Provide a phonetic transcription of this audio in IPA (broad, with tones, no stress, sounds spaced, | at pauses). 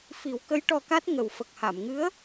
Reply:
f i˨˩˦ w k ə˧˥ j ʈ ɔ˧ k a˦˥ t̚ ŋ ə˨˩ w f ə˨˩ k̚ h a˨˩˨ m ŋ ɨ˧˥ ə̯